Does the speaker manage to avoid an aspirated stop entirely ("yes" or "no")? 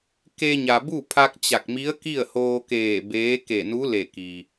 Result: no